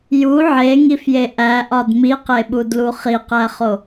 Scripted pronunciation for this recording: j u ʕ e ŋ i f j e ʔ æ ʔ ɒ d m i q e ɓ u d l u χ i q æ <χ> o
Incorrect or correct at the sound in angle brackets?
correct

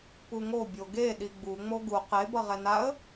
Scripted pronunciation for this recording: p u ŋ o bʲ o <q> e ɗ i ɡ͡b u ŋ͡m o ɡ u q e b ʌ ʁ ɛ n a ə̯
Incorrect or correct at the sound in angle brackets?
incorrect: ɡ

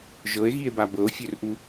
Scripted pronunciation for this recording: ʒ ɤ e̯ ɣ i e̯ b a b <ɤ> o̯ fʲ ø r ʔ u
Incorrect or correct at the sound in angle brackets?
correct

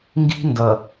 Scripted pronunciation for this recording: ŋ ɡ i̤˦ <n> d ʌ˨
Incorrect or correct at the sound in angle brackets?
correct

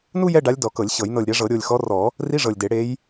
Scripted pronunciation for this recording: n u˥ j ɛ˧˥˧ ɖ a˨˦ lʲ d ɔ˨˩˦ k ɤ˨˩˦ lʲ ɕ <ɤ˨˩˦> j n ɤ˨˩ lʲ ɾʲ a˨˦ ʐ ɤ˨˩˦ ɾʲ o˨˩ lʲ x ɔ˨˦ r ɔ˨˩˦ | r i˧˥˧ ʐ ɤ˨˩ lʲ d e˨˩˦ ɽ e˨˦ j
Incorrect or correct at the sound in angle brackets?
correct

